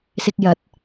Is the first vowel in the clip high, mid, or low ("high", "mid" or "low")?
high